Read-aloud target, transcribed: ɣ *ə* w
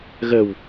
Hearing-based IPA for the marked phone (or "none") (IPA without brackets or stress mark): ə